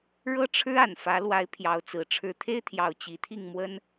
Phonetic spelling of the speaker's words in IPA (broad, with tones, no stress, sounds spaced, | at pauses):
ɻ ɤ˥ ʈ͡ʂʰ ɻ̩˥ a˨˩ n f ä˧˥ l w a˧˥ ɪ̯ pʰ j ɑ˧˥ ʊ̯ t͡s ɹ̩˨˩ ʈ͡ʂʰ ɻ̩˥ t̪ʰ e˥ ɪ̯ t̪ʰ j ɑ˨˩ ʊ̯ t͡ɕ i˧˥ t̪ʰ i˥˩ ŋ m w ə˥ n